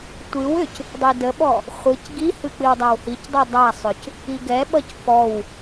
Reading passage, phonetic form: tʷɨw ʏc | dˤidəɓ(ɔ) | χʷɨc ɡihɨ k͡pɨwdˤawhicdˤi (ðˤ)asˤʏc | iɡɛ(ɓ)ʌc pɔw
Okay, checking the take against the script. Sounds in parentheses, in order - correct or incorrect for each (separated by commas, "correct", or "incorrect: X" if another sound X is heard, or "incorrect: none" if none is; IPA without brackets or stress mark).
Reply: correct, incorrect: dˤ, correct